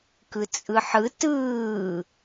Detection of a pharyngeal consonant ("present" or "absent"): present